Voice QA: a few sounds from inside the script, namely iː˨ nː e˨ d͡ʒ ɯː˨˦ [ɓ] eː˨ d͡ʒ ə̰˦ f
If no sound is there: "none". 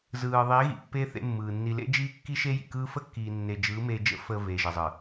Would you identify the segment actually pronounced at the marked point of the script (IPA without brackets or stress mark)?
m